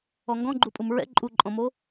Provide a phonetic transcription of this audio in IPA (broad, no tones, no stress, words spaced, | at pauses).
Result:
ɔŋɡɔ̃ɡ͡ǃupʼum ɹɛ̰ ǃʼuǃʼɔ̃mo